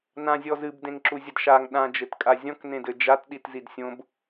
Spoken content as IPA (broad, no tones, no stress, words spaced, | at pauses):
nãzʲɔzɨb dẽŋǁuzʲɐdʃaŋ ɗã d͡ʒɘtkʼazʲɔ̃k nẽdɘd͡ʒat ɗitzidsʲõb